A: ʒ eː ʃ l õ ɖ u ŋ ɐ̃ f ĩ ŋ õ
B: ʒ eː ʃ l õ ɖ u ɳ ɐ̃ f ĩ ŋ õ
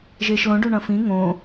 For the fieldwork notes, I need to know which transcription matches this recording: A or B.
B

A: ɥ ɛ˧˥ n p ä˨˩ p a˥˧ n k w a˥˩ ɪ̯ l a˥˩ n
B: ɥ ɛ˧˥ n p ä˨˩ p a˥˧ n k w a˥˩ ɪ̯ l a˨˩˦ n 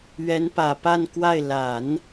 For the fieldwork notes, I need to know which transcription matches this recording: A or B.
B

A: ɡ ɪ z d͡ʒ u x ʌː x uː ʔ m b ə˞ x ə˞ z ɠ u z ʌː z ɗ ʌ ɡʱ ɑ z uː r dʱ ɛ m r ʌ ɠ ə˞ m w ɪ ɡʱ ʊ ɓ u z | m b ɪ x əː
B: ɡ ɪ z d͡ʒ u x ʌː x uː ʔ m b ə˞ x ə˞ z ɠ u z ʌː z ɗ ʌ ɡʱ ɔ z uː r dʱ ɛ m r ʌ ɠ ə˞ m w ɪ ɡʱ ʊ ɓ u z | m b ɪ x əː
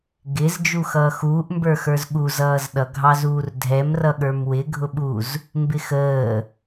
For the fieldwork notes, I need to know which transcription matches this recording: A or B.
A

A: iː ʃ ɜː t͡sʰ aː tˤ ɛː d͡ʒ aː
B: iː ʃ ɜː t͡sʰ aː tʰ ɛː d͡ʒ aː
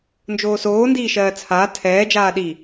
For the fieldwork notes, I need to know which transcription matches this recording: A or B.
B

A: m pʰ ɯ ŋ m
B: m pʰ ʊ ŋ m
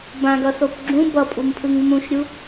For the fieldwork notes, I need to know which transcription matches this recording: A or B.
A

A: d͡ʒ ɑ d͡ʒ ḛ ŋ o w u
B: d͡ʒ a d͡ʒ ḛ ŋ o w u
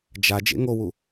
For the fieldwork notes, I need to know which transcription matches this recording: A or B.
B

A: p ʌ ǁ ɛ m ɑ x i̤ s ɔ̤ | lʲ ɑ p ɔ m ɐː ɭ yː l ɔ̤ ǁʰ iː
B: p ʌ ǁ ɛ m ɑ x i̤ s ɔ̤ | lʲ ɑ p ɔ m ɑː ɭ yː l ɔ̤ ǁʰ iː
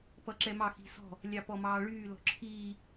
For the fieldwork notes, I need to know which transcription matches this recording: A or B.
B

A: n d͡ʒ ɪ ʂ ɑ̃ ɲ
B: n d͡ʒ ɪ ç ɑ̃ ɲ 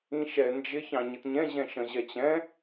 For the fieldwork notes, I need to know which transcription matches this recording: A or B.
B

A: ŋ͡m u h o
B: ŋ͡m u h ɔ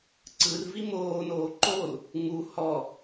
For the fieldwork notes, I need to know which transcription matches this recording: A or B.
B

